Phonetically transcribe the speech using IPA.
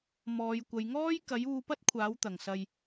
mɔː˨˧jkʷɐ˨˧j ŋɔː˥jkɐ˨˥juː˧pɐ˥t̚ kʷʰaː˨˥wt̪ɐ˨˩ŋ sɐ˨j

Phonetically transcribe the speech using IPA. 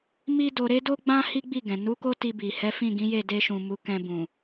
mi˦do˧ ɾe˦do˦ɡ͡bã˦ hi˦ɡ͡bi˦˨ɡɛ̃˨ nu˨˦ ko˦ti˧bi˨ hɛ˨˦fĩ˦˨ɡĩ˨˦je˦˨ de˧ʃũ˨ mu˨˦kɛ̃˧bũ˨

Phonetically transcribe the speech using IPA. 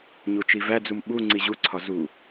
ɲut͡ʃivæd͡zum ɓu ŋ͡ǀiʑuǀʰɒ zu

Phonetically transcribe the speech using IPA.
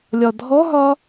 lʲɒdʱɔɦɒ

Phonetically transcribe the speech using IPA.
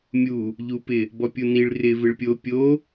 mʲu | ʎupɪ | bɔpʲuniɭ rɪ vɪɭpʲo pʲo

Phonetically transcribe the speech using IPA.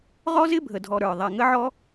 ʁɔ˦zɪ˦bʱə˨dʱɔ˨ ɾə˞˨ ðˤɛ˨ŋə˦ʕɔ˦

